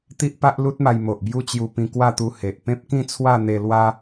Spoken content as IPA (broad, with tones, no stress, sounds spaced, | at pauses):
t̪ i˦ ʔ p a˦ ʔ l u˦ t̚ m a˧ j m o˨ ʔ b j u˧ t͡ɕ j u˧ p ĩ˧ k w a˥˧ t̪ u˧ h e˨ ʔ p ẽ˦ p̚ k ĩ˥˧ t͡sʰ w a˥˧ n̪ e˧ l w a˦